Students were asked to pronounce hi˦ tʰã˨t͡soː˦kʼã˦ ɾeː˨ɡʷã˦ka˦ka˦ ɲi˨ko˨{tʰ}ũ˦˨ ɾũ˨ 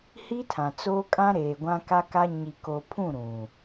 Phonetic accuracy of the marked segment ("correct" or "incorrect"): incorrect